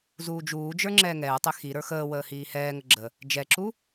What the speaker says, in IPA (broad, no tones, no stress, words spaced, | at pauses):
zuːd͡ʒuːd͡ʒə˞ ŋ͡ǁɛːŋɛːtˤe xi ɾə˞xəːwəː hiːhɛːŋə ɡ͡ǁə | d͡ʒɛǁu